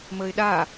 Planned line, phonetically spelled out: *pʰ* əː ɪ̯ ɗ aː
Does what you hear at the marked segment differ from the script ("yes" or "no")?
yes